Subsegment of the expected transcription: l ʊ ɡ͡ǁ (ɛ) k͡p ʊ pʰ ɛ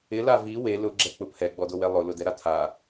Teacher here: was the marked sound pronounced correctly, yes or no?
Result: yes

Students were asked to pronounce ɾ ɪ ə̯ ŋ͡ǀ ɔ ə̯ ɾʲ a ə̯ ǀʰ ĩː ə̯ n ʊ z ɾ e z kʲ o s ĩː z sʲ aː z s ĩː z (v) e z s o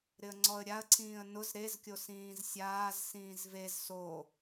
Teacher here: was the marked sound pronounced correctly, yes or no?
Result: yes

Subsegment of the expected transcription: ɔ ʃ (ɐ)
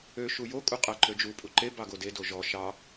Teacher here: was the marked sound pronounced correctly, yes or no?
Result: no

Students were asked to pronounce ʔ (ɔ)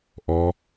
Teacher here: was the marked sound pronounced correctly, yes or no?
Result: yes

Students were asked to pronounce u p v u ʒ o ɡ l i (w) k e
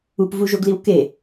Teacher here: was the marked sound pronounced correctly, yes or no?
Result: yes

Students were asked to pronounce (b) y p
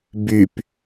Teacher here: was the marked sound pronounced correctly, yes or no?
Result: yes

